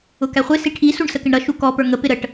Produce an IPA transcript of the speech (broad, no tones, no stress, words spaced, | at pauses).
ʊkæχʷɪ siʈʰi suɳsəkɪɳɾʌ ʃukɔ pə˞ŋə pɪɾəʈ